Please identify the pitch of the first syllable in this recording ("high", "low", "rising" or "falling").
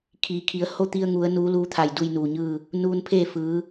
low